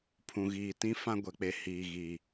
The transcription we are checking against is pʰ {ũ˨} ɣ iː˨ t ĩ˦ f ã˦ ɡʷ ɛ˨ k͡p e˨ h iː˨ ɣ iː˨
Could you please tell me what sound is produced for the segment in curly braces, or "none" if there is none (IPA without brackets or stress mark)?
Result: ũ˨